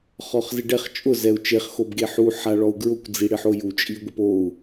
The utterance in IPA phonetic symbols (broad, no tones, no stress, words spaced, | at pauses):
χɔχzɪɖɛχ t͡ʃʼʊ zɛu̯t͡ʃeχ xobɡeħu ħaɭɔu̯ɡɹʊkʷ d͡ziɽɪħoju t͡ʃʼiɡʷɪpou̯